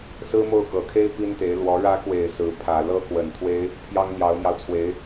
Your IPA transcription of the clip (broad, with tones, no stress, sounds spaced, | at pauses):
s ɹ̩˥ m o˥˩ ʊ̯ k ɤ˨˩ kʰ e˥ ɪ̯ p i˥ n t̪ e˧˥ ɪ̯ l w ɔ˧˥ ɻ ä˧˥ k w e˨˩ ɪ̯ s ɹ̩˧˥ pʰ ä˨˩ l ɤ˥ k w ə˨˩ n t̪ʰ w e˥ ɪ̯ | pʰ j ɑ˥ ŋ n̪ j ɑ˧˥ ʊ̯ m j ɑ˧ ʊ̯ t͡sʰ w e˧˥ ɪ̯